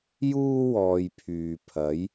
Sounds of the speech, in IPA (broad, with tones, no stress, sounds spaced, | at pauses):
j uː˥ w ɔː˧ j pʰ yː˨ pʰ ɐ˨˥ j